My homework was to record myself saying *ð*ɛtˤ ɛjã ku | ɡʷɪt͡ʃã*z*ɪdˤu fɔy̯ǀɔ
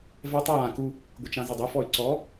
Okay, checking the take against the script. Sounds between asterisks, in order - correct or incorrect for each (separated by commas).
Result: incorrect, correct